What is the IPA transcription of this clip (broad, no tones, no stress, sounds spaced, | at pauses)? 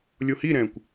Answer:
lʲ o h i ɾ ɛ̃ː kʷ